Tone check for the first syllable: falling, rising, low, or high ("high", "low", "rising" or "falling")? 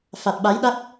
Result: low